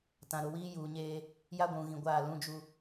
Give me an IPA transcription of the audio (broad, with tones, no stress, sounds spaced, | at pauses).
t ã˨ ɾ ʊ˨ w iː˦ j uː˨ ɲ eː˦ | j a˦ ɡʷ ũ˨ ɣ ĩ˨ ɡʷ aː˦˨ l ũ˦ d͡ʒ u˦